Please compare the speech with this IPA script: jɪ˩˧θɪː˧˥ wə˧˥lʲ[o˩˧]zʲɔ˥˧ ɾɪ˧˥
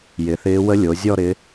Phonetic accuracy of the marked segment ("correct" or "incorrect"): correct